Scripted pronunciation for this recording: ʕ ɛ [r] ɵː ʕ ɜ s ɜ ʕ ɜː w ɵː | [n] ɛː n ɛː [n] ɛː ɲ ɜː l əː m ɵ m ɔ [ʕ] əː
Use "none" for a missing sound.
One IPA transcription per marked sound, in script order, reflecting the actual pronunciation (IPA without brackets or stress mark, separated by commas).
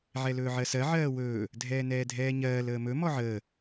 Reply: l, dʱ, dʱ, ʕ